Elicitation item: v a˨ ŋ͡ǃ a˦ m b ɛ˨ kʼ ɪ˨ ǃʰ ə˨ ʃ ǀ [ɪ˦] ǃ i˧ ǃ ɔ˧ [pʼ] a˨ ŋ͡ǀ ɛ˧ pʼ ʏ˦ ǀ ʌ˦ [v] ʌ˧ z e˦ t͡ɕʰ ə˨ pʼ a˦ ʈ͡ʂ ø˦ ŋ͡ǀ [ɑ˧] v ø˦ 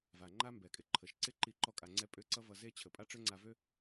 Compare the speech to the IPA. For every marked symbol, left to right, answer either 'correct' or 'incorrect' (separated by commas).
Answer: correct, incorrect, correct, incorrect